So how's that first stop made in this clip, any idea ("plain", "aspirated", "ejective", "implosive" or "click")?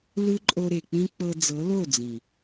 click